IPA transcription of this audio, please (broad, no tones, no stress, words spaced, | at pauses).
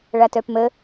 ɭatœpmə